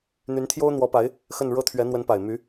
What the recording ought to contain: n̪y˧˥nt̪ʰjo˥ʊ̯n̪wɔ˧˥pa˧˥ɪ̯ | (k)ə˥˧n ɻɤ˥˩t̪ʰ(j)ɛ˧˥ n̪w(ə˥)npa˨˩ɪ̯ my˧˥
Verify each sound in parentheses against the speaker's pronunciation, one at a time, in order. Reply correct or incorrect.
incorrect: x, incorrect: ɥ, incorrect: ə˧˥

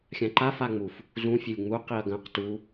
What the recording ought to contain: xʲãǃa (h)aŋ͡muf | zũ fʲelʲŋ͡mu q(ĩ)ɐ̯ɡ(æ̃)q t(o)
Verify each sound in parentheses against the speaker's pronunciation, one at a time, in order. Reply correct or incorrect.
incorrect: f, incorrect: i, incorrect: ɐ̃, incorrect: u

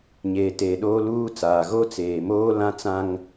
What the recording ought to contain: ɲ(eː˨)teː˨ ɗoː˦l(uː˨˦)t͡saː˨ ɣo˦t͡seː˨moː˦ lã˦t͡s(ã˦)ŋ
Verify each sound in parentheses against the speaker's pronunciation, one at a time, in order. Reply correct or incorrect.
correct, incorrect: uː˦, correct

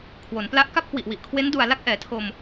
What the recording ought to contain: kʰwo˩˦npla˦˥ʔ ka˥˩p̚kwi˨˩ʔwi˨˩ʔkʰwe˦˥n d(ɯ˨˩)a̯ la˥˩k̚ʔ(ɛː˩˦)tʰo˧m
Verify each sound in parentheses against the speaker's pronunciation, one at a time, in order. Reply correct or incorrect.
incorrect: u˨˩, correct

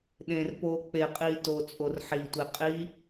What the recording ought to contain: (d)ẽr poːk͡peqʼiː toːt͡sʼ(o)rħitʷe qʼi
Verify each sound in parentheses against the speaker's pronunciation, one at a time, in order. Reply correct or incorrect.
incorrect: ɗ, correct

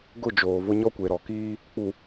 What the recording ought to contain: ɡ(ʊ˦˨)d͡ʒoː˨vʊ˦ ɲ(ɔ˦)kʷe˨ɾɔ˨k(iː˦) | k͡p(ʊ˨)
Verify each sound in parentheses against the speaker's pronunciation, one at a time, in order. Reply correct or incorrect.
correct, correct, correct, incorrect: u˨

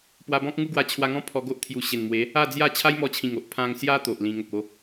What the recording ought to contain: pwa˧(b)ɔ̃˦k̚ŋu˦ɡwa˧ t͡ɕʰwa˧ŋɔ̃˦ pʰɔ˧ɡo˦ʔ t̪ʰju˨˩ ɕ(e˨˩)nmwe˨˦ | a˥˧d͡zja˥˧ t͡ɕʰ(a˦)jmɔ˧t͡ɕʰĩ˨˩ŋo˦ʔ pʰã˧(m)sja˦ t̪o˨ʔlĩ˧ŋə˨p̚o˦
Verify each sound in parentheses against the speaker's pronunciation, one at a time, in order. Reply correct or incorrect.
correct, correct, correct, incorrect: ŋ

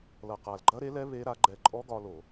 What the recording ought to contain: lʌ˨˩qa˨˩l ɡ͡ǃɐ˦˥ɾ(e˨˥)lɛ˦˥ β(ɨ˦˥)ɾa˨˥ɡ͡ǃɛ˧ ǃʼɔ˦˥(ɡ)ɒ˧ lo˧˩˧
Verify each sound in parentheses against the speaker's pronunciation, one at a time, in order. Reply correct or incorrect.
correct, incorrect: e˦˥, correct

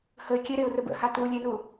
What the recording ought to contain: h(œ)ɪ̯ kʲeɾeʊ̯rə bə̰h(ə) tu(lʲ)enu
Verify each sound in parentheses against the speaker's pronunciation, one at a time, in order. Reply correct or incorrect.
incorrect: ə, incorrect: a, correct

